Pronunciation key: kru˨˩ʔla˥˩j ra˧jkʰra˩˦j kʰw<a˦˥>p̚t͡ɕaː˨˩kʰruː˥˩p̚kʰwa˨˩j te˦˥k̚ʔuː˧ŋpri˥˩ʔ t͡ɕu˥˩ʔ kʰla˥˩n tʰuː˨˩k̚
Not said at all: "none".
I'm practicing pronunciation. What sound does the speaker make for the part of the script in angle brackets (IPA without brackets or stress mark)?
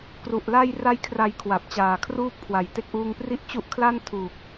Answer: a˨˩